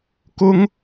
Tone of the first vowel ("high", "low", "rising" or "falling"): high